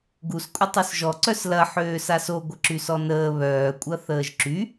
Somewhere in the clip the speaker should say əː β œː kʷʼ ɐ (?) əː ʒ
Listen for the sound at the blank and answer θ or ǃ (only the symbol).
θ